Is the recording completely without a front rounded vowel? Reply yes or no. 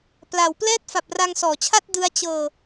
yes